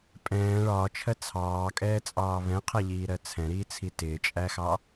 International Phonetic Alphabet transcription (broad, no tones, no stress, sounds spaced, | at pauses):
pʼ ɛ̃ː ɭ ɒː t͡ʃʰ ɜ t͡sʰ ɑː kʼ ɛː t͡sʼ ɑː β ɛ̃ qʰ ɛ ʎ iː ɾ ɜ t͡sʰ ɛ̃ ɾ iː t͡sʰ i t ɪː t͡ʃʼ æ x ɑ